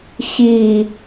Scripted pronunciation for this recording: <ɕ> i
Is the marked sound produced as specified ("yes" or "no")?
yes